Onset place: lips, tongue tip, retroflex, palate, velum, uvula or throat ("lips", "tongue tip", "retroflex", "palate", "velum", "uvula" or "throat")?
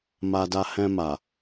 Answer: lips